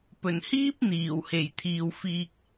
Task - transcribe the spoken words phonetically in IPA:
pɵ˨˩nhiː˥p̚ n̪iː˨˩w he˨˩jt̪ʰiː˨wfiː˧k̚

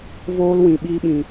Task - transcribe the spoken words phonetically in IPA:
voː˦lwĩ˨ ɓiː˧ɓĩ˨

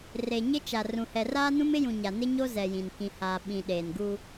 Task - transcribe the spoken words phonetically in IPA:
re˨ɲɪ˦ t͡ʃa˨ rũ˨hɛ˨ raː˦nũ˦m ɪ˦jũ˨ ɲa˨nɪ˦ɲo˦ zɛ˨jĩ˨n kĩ˨ haː˨ ɓĩ˨ ɗeː˨nɡuː˦

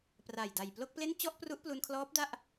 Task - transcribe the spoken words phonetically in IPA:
pra˨˩j da˨˩jplo˥˩k̚ple˥˩n t͡ɕɔ˥˩ʔpru˦˥ʔplu˧nkʰlɔː˦˥p̚ da˥˩ʔ

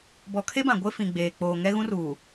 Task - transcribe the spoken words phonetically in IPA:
bɔ˨kʰe˦bã˨ ɡʷe˦fĩ˨ɡ͡beː˨ k͡poː˨ŋɛ˦ɣũ˦ruː˨

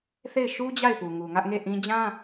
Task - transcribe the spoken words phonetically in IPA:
θe˦˨ɪ̯ ʃu˦ d͡ʑa˦˨ɪ̯pu˨ŋu˨ ŋä˦ʔŋe˦˨ʔĩ˦ d͡ʑã˦

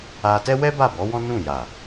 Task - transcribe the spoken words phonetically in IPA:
a˧tɛ˦ wɛ˦ ba˦˨bɔ˨˦wɔ̃˦ nũ˦˨ ja˨

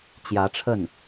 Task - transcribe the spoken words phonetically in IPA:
t͡ɕjä˧˥ʈ͡ʂʰə˥˩n

